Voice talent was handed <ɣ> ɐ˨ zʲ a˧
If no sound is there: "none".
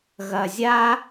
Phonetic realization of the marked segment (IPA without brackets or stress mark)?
ɣ